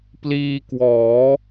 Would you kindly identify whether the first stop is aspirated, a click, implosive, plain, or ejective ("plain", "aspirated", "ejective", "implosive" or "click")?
plain